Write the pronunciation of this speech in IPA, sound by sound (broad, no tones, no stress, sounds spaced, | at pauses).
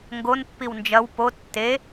ŋ ɡ o n pː i w n d͡ʒ ɐ w p o tː e